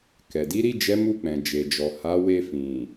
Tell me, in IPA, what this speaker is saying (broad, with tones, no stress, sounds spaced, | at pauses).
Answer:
k ɛ˨ d i˨˦ ɾ i˦˨ d͡ʒ ɛ˨˦ m u˦˨ k͡p ɛ̃˨ d͡ʒ e˨ d͡ʒ ɔ˨ h a˨˦ w e˧ f ĩ˨